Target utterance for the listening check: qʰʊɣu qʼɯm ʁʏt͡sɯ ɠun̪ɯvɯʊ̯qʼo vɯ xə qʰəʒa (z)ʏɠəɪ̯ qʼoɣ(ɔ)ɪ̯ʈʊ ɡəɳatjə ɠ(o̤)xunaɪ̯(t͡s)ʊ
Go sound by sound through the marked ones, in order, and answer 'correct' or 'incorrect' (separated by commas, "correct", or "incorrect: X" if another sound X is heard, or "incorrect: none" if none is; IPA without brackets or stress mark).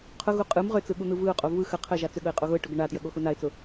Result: incorrect: t͡s, incorrect: ʊ, incorrect: o, correct